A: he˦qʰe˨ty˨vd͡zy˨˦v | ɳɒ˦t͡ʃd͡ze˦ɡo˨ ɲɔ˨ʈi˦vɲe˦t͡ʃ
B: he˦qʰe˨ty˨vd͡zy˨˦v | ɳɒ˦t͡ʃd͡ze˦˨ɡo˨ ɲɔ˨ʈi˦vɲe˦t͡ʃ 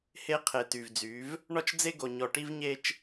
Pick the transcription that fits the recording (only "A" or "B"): A